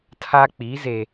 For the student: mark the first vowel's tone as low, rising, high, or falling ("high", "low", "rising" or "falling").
high